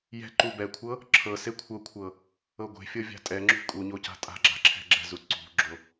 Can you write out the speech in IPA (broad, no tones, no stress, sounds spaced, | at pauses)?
j ɛ̤ ǃ u b ɛ kʷʰ ɤ | ǁʰ ɤ s e kʷʰ ɤ kʷʰ ɤ | ɤ ɡʷ e̤ fʲ ɤ vʲ a̤ tʼ ɛ ŋ͡ǁ ṳ kʼ u ɲ o c a̤ tʼ a̤ ɡ͡ǁ a̤ ǁʰ ɛ̤ ɡ͡ǁ ɛ̤ z u ǀ ṳ ɡ͡ǁ o